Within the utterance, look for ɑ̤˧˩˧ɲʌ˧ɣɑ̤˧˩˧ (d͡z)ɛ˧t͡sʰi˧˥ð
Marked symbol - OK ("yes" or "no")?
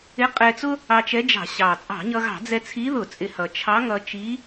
yes